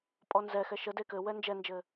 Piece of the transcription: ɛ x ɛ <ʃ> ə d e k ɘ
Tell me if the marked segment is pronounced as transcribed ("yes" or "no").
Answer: yes